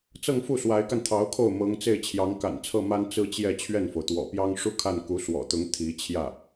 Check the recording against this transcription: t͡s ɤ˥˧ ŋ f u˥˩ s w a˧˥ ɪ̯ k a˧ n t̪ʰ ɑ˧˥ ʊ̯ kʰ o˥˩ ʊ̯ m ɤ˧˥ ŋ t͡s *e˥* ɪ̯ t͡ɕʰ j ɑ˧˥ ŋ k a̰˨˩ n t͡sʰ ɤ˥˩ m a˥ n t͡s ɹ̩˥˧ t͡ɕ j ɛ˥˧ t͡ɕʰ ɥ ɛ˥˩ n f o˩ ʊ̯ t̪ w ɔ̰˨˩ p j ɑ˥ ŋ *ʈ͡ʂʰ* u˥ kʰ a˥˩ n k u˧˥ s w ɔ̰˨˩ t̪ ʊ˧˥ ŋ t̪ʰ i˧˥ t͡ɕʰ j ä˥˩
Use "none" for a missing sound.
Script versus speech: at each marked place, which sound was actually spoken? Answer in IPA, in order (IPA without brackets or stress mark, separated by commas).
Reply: e˥˩, ʂ